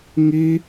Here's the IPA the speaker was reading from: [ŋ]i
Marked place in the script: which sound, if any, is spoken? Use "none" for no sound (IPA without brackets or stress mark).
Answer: ŋ